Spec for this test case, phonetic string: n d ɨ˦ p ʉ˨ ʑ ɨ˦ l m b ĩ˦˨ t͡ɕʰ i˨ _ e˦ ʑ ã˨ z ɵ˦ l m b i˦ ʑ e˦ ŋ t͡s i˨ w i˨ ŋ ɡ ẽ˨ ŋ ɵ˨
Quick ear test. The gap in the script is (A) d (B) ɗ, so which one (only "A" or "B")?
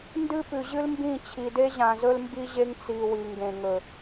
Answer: A